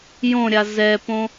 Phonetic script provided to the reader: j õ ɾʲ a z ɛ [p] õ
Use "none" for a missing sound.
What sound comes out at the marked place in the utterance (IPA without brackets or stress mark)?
p